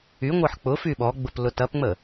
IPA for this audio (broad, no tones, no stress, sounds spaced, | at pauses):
y ŋʷ ɤ ħ k͡p ʊ f y ɓ ɔ ɡ͡b ʊ p l ʊ t ɐ p ŋ͡m ə